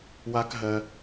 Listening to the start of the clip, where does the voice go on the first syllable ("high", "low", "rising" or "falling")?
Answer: high